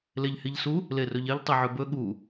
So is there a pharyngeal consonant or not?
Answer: yes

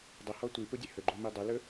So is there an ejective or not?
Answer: no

